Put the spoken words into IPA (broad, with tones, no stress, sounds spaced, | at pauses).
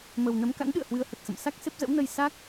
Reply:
m ə˨˩ w n ə˨˦ m k a̰˧˥ n ɗ ɨ̰˧˨ ə̯ h w ɨ˧ ə̯ h ə˨˩ t̚ s ə̰˧˨ m s a˦˥ k̚ s e˦˥ p̚ z ə̰˧˥ w n ə˧ j s a˦˥ k̚